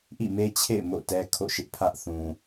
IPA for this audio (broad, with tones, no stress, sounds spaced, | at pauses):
ʔ ḭ˦˨ m e˦ t͡ɕʰ ḛ˦˨ ɪ̯ m o̰˦˨ t ɛ˦ kʰ o̰˦˨ ʃ ɪ˦ ʔ pʰ ä˦ ʔ θ ũ˨